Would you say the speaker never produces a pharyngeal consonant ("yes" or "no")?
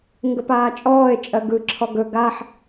no